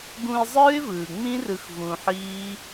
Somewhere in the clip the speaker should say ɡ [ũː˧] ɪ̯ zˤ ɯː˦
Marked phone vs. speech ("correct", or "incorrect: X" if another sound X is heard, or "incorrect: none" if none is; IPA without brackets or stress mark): incorrect: ũ˧